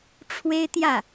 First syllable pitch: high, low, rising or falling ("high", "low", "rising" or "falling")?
high